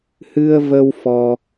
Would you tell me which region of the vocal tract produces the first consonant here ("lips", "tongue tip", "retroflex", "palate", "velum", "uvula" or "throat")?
throat